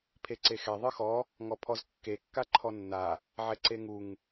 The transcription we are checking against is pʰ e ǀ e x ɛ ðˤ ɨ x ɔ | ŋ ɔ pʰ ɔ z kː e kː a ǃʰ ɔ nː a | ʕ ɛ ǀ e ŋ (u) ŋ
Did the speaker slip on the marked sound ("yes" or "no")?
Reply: no